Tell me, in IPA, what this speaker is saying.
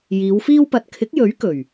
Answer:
jiː˨˧wfiː˥wpɐ˧t̚ kʰɪ˨˥k̚jɵ˨˥ɥ kɵ˨˩ɥ

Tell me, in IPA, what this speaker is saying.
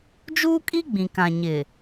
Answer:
d͡ʒuː˦kʼi˦ ɡ͡bĩ˨kã˨ ɲɪ˨

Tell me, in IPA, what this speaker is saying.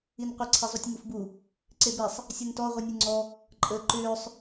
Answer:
inqʷə ǀʰezˤutʲŋufbu | ǀebesˤ | sʲɯntɔ ʁʷinʲɯŋ͡ǀɔ | ǃʼəːǃʏːsˤ

